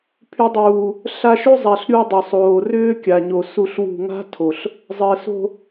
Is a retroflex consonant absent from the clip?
yes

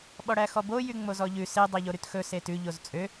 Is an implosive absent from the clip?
no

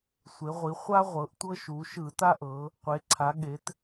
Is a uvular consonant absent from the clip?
no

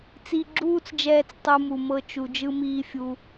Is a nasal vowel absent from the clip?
yes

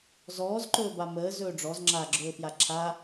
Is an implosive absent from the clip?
yes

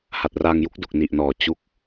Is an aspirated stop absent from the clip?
yes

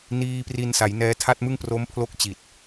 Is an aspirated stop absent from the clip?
no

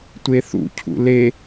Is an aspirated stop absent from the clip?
no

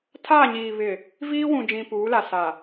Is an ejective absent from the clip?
yes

